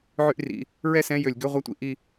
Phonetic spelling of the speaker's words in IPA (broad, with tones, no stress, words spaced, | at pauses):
ʕy˥ʔrḭ˩˧˩ | ɹɛ˥˧sɛ̃˧˥˧jø˧˩˧lʲɡø˧˥˧ ʁʷɑ˥tʷḭ˥˧ ʔi˥˧